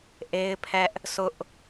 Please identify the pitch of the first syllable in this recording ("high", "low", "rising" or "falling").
high